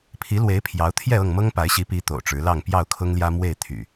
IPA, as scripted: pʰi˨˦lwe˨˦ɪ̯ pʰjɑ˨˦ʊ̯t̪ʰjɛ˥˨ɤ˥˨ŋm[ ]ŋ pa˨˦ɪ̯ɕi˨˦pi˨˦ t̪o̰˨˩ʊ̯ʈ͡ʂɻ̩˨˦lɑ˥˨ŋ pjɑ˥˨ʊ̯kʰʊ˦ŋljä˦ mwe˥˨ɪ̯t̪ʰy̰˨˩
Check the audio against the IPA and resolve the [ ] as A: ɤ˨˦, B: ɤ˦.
B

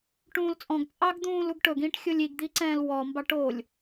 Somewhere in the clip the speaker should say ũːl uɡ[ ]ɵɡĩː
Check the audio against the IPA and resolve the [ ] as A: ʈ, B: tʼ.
A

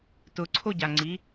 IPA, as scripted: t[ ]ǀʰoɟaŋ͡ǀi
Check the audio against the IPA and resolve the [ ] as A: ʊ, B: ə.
A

